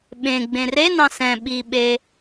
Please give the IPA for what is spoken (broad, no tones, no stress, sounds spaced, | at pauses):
ɓ ẽ ɡ͡b ẽ r e n ɑ̃ s ɛ̃ ɓ i ɓ e